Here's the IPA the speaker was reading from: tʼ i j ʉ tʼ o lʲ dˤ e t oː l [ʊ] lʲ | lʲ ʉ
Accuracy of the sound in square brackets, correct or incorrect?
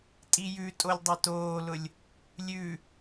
correct